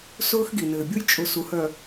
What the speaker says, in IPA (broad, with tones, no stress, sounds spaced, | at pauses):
s ʊː˦ x ɡ i˨ n ɘː˨ bʲ u˦ j t͡ʃʼ ʊ˨ s u˨ h œ˨